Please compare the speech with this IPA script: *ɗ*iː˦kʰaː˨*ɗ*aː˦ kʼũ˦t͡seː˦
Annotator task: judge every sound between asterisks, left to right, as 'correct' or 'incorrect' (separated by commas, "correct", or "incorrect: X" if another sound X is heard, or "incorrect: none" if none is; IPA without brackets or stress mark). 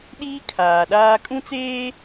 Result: correct, correct